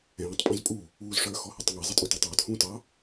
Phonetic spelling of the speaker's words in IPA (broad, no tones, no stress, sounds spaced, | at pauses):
ɛ̃ː tˤ pʼ ɔ̃ z pʼ u | uː z ʂ ə˞ x ɔ h ʌ tˤ ŋ ɛ zˤ ɪ tʼ u t æ tˤ w ʊ t h ũː t ɑ